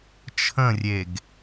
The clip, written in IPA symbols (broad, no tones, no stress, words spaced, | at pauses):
t͡ʃʰə̃rʲeɡ